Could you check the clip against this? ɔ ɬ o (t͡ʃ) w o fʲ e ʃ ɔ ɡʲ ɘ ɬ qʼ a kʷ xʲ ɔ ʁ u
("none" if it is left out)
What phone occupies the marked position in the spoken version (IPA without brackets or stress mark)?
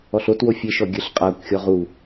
t